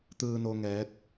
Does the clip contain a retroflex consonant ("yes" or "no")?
no